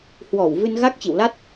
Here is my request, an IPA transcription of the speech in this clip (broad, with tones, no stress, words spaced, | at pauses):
hwɔ˧˩wvɨ˧nɣa˦˥k̚ t͡ɕḭ˧˨wla˦˥t̚